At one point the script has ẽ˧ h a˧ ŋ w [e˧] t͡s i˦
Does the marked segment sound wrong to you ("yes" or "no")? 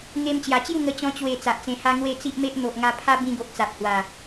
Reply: yes